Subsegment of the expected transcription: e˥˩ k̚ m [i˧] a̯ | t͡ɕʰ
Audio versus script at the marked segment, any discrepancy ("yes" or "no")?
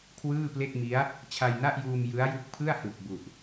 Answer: yes